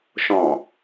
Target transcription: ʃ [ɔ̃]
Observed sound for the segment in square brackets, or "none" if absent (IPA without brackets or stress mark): ɔ̃